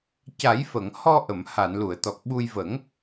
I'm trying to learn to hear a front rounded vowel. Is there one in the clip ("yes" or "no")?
no